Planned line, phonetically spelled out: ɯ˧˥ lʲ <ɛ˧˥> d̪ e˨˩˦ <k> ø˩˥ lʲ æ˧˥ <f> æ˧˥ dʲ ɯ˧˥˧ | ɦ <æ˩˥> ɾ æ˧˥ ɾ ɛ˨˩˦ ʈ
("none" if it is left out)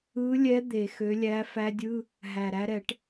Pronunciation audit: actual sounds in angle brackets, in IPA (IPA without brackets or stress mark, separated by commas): ɛ˧˥, x, f, æ˨˩